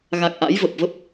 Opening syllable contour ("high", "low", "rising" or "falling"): low